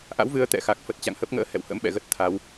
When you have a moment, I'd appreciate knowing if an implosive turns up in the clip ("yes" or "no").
yes